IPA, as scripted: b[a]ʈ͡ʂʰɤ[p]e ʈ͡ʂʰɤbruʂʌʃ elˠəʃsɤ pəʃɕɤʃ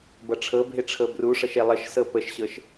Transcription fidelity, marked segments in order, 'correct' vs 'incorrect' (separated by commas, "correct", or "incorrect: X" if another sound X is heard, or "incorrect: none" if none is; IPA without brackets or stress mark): incorrect: ʌ, incorrect: bʱ